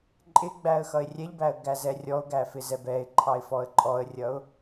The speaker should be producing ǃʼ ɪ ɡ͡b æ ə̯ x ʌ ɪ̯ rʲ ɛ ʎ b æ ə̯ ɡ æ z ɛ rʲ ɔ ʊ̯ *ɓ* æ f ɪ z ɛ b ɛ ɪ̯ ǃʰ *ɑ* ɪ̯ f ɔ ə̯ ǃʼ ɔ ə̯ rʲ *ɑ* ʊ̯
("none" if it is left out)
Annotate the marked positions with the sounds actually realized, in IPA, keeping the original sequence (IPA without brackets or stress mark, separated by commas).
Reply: ɡ, ɑ, ʌ